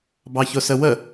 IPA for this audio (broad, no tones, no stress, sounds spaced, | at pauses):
b ɑ ç ʊ s ə w ə